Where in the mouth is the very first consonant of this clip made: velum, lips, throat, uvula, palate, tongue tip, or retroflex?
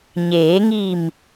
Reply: palate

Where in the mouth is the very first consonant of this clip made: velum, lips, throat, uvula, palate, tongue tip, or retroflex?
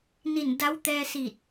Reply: tongue tip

